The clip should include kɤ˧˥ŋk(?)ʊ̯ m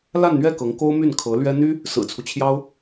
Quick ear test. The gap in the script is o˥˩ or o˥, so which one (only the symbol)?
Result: o˥